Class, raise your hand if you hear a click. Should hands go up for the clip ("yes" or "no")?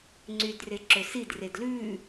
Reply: yes